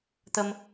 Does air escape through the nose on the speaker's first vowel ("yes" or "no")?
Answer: no